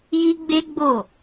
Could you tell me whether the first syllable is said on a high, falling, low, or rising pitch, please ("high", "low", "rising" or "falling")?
high